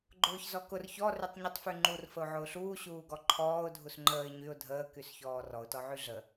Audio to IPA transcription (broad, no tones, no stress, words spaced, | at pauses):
ɡ͡ǃʊːçzɔkʊr çɔ rytˤɲutˤfyŋ͡ǃur fəʊ̯ʕʊːɬuː ɕuːɡɔǃʰɔːʊ̯ dʱusŋ͡ǃəːɪ̯ ɲyʊ̯ dʱəː kysçɔːrɔʊ̯ tɔʕyɮə